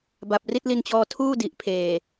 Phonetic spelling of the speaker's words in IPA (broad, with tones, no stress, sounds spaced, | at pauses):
b a˨˩ p̚ r i˥˩ t̚ l i˧ n t͡ɕ ɔː˧ tʰ uː˥˩ d i˨˩ ʔ pʰ eː˨˩